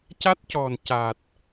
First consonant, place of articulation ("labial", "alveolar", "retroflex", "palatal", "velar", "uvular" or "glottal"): palatal